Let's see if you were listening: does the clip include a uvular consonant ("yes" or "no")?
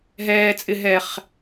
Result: yes